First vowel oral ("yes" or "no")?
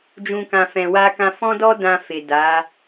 no